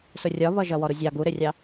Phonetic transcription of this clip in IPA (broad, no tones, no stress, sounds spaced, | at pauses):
s ʊ rʲ ɒ β ʌ ʒ ʌ w ɔ ɾ u zʲ ɑ ɡ u ɾ ɪ rʲ ɑ